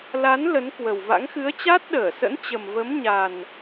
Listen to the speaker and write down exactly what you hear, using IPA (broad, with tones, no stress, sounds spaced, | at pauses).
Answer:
l a˨˦ n l ə˨˦ n k w ə˨˩ w v a̰˧˥ ŋ x ɨ˨˦ ə̯ t͡ɕ a˦˥ t̚ ɗ əː˧˩ s ə̰˧˥ n t͡ɕ ə˨˩ m v ə˨˦ m ɲ a˨˩ n